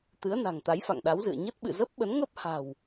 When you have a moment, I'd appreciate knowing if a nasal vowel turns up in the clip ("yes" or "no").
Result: no